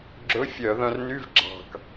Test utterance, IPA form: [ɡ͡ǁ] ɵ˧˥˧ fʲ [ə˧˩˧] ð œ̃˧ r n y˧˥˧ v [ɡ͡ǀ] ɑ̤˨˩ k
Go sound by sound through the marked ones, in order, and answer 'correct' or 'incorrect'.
correct, incorrect, incorrect

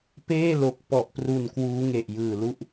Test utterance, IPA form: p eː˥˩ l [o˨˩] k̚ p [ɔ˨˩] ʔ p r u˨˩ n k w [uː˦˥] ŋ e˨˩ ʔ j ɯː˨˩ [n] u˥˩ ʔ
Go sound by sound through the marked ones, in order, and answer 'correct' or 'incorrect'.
correct, correct, correct, incorrect

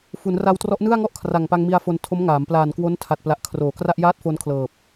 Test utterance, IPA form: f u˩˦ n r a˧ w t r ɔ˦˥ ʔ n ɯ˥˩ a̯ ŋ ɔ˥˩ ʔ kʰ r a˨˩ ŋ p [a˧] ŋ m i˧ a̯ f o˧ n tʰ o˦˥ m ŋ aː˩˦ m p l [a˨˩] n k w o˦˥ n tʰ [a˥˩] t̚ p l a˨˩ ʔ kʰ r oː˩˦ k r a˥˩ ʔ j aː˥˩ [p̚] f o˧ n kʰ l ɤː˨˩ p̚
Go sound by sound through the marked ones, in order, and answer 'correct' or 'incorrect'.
correct, incorrect, incorrect, incorrect

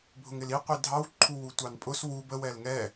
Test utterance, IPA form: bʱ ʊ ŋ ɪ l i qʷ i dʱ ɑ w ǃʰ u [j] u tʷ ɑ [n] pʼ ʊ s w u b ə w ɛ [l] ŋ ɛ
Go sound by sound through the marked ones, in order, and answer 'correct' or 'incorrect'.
incorrect, correct, correct

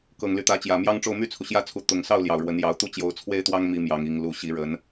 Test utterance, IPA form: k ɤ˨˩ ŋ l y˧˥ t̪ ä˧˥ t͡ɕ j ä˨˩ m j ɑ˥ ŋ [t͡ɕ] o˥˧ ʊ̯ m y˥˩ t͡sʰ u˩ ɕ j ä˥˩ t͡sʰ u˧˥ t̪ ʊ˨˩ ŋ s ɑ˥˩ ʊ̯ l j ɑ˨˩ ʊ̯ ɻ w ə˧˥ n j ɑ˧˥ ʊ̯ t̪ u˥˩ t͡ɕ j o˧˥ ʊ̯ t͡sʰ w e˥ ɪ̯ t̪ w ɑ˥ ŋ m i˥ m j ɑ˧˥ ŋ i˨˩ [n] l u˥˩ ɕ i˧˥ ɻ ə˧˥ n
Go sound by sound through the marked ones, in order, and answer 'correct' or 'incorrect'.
incorrect, incorrect

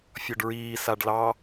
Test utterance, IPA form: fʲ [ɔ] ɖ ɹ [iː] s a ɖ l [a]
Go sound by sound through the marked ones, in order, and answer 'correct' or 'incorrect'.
correct, correct, incorrect

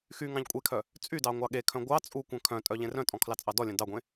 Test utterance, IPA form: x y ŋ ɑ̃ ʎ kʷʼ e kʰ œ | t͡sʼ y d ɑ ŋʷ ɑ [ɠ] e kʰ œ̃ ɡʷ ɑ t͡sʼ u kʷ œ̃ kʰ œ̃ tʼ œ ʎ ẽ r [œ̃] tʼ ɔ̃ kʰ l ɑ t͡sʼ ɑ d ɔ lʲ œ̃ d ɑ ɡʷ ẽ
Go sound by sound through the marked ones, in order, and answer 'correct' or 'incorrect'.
correct, correct

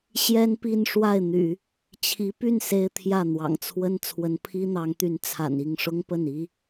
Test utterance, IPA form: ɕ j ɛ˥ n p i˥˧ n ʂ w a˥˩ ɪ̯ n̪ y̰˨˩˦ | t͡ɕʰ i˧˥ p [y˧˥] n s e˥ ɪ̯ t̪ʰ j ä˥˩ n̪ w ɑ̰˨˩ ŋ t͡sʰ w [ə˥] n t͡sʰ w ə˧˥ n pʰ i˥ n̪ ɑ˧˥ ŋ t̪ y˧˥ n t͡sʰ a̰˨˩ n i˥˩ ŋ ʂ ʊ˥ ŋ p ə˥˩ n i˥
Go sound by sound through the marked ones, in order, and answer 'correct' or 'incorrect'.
incorrect, correct

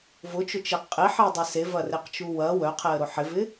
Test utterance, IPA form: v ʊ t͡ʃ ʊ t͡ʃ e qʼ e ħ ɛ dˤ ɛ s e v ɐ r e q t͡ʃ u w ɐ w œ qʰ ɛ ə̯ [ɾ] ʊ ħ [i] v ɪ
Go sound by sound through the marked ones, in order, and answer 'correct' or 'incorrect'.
correct, incorrect

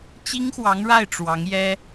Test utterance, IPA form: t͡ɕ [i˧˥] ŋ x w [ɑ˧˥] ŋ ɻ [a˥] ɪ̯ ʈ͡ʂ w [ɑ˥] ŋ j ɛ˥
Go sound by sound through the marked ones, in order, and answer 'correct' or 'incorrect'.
incorrect, correct, incorrect, incorrect

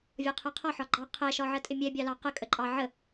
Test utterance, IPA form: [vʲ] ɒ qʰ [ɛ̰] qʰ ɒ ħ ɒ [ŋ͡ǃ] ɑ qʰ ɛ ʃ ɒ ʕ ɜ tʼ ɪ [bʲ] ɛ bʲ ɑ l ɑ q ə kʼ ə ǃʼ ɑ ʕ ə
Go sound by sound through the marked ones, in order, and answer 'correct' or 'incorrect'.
correct, incorrect, incorrect, incorrect

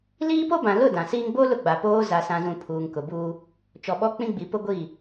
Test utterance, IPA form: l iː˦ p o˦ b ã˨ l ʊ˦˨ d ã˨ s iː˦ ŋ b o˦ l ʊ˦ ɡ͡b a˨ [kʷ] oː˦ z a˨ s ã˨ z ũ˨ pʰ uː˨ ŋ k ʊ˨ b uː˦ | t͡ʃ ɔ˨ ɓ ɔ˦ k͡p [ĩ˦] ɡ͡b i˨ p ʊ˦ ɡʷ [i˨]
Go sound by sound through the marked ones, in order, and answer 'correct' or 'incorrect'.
incorrect, correct, incorrect

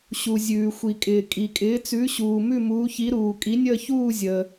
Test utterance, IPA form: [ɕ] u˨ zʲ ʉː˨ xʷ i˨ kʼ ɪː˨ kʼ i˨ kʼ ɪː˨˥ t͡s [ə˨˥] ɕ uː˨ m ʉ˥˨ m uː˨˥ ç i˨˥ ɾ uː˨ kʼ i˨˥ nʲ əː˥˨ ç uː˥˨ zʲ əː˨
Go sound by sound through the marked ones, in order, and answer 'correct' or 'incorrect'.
correct, incorrect

